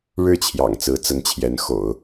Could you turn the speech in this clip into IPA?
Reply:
ɻ ɻ̩˥˩ t͡ɕʰ j ɑ̰˨˩ ŋ t͡s ɹ̩˧˥ t͡s ə˧˥ n t͡ɕʰ j ɛ˧˥ n x o̰˨˩˦ ʊ̯

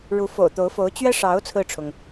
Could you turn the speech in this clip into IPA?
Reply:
ɻ u˧˥ f o̰˨˩ ʊ̯ t̪ o˧˥ ʊ̯ f o˧˥ ʊ̯ t͡ɕ ɥ ɛ˥ ʂ ɑ˧˥ ʊ̯ t͡sʰ ɹ̩˥˩ ʈ͡ʂʰ ʊ˩ ŋ

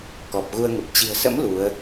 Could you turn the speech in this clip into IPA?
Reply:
k ɔ˨˩ p̚ ɣ u˧ ə̯ ŋ ə˨˩ p̚ t͡ɕ i̤˨˩ ə̯ s ə̰˧˥ m l u˨˦ ə̯

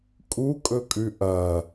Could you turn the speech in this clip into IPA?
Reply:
kʼ u kʼ ɵ kʼ ʉ ʔ ɐ

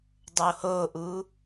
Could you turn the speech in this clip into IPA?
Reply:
dˤ oː h oː ʔ uː

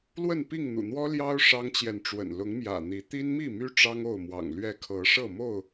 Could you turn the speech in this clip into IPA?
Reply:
l w ə˥˨ n p i˥˨ ŋ n̪ ṵ˨˩ n̪ w ɔ˦ l j ɑ˦ ʊ̯ ʂ ɑ˦ ŋ t͡ɕ j ɛ˨ n ʈ͡ʂ w ə̰˨˩ n l ʊ˨˦ ŋ m j ä̰˨˩ n̪ i˨˦ t̪ i˦ n m i˥˨ m y˦ ʈ͡ʂ ɑ˦ ŋ o˥˨ ʊ̯ m w ɑ̰˨˩ ŋ l ɥ ɛ˥˨ kʰ ɤ˨˦ ʂ ɤ˥˨ m o˥˨ ʊ̯

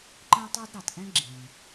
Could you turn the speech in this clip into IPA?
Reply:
ǃ ɛ̃˥ tˤ ɑ˥ d ɾ ɑ˩ t ʔ ɛ̃˥ ɡ͡ǁ ĩ˩

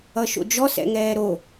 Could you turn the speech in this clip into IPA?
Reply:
ʌ ʃ o̰ d͡ʒ ɔ s ɛ̰ ŋ ɛː ɾ o

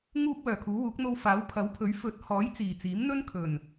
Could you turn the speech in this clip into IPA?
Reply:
ŋ uː˧ p̚ w œː˨˩ kʰ uː˨˥ w uː˨˥ k̚ n̪ o˧ w f aː˨˥ w pʰ ɐ˨˥ w pʰ ɵ˨˥ ɥ f ɵ˨˥ t̚ h ɔː˨˥ j t͡s iː˨˩ t͡s iː˨˥ m n̪ ɵ˥ n kʰ ɵ˨˩ n

